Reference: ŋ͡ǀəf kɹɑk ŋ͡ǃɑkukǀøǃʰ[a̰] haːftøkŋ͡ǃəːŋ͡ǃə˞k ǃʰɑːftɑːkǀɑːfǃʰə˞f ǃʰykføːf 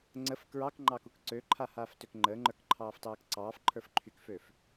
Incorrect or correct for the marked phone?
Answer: incorrect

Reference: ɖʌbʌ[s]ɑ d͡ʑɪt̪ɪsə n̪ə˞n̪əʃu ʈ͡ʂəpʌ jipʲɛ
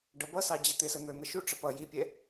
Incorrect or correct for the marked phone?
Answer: correct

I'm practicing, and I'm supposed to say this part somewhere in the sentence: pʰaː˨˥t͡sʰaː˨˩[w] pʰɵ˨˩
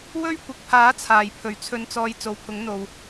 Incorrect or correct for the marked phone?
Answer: incorrect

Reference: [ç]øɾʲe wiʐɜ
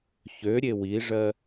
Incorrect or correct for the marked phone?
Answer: correct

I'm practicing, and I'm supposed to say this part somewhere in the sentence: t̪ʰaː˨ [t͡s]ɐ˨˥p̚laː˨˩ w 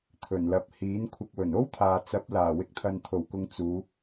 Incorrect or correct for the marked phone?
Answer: correct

